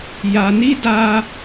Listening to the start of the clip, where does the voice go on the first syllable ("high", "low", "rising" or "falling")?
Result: low